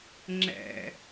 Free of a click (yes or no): no